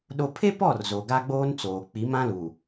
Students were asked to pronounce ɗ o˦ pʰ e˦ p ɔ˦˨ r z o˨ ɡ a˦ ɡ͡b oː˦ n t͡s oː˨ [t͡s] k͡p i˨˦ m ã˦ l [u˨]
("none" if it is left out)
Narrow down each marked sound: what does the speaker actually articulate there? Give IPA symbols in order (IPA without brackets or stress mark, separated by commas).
none, u˨